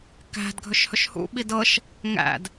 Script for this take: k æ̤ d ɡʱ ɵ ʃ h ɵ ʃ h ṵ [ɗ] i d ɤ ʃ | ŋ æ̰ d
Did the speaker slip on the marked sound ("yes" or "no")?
yes